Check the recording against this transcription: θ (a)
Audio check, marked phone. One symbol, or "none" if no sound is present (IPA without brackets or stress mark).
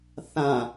ã